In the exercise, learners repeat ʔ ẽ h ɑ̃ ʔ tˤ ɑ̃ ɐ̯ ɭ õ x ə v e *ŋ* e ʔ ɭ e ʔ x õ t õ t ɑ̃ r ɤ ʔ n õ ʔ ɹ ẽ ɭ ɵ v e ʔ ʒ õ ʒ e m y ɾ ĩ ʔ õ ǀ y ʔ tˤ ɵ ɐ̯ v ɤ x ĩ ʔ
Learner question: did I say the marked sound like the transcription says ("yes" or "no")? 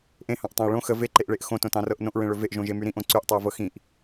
no